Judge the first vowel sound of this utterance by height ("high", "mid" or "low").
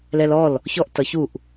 mid